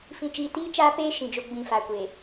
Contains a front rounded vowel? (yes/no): no